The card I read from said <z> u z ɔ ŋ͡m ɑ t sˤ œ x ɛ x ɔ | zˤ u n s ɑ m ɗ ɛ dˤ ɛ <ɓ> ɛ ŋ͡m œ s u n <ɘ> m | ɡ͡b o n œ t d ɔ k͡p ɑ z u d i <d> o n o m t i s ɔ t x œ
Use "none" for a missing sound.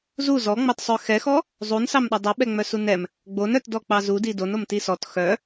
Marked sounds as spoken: z, ɓ, ɛ, d

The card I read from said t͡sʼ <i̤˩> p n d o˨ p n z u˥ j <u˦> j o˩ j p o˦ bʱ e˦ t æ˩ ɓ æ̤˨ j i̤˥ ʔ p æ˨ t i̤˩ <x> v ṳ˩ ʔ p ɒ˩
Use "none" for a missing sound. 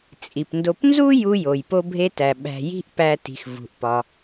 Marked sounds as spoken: i˩, u˦, x

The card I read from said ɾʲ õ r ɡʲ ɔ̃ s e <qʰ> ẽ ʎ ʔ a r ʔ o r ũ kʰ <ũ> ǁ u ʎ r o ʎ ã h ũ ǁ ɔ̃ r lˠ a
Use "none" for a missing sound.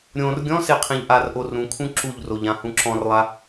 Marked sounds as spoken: qʰ, ũ

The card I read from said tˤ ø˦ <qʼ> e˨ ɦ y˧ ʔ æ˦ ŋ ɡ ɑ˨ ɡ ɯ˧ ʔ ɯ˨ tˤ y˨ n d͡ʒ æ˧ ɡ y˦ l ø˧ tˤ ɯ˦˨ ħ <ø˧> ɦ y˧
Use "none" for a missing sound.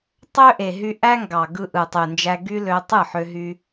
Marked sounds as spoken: ʔ, ø˧

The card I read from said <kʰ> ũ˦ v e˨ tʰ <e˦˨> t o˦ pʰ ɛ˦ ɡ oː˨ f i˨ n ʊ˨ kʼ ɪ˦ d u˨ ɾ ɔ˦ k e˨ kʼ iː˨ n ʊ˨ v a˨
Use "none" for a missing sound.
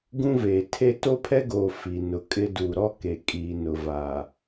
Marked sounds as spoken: ɡ, e˦˨

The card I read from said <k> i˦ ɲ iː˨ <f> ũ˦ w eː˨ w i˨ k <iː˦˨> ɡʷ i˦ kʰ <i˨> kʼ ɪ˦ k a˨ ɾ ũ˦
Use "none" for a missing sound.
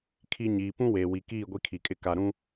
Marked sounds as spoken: kʰ, p, iː˦˨, i˨

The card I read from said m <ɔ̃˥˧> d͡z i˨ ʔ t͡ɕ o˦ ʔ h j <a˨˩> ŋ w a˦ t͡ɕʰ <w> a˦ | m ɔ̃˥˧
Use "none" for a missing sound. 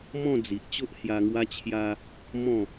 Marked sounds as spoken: ɔ̃˥˧, a˧, j

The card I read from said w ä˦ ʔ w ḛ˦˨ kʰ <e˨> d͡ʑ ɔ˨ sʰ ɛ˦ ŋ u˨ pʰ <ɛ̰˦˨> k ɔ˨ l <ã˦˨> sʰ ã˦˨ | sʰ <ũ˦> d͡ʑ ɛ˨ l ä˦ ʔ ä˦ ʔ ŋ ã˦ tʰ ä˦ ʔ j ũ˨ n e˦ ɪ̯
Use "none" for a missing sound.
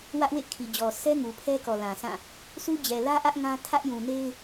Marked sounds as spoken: i˨, ɛ˦, ã˨, u˦

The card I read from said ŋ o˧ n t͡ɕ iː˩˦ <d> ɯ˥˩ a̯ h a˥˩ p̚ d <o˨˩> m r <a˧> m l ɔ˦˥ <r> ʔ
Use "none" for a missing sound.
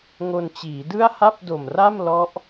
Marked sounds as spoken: d, o˨˩, a˥˩, none

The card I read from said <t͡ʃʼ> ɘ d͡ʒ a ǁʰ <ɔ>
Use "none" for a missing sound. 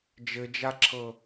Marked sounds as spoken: d͡ʒ, ɤ

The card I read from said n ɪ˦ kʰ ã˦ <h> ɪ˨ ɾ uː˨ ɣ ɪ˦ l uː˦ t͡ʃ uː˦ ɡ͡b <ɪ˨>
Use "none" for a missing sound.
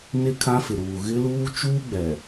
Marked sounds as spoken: f, ɛ˨

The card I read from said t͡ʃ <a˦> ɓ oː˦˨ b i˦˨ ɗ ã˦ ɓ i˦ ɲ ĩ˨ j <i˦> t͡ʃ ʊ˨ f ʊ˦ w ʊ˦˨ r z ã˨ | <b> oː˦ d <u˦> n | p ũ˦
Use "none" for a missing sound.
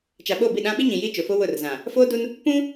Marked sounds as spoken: a˨, i˦, f, u˦

